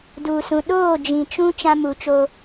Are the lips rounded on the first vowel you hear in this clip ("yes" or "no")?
yes